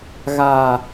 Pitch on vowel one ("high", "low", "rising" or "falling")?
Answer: low